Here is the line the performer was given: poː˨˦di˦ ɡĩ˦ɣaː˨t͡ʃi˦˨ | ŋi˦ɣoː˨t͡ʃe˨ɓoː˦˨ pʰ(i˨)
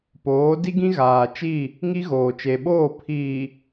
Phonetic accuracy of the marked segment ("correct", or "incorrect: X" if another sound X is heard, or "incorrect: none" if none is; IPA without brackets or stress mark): incorrect: iː˨